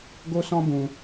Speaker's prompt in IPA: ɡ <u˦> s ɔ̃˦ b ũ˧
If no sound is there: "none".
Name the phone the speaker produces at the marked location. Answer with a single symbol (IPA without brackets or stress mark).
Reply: o˦